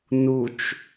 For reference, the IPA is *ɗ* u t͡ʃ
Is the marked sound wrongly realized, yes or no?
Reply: yes